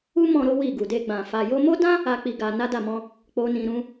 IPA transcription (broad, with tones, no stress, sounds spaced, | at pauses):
u˦ m ɔ̃˧ ɾ o˦ w i˦˨ ɡ u˨ d e˧ ɡ͡b ã˨ f a˨ j o˧ m o˦ d ã˦ | a˦ k͡p i˧ ɡ a˧ n a˦ d a˦˨ m ɔ̃˧ | k͡p o˦ n ĩ˧ ɾ ũ˦